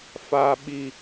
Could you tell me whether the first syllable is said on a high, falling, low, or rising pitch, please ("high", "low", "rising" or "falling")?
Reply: high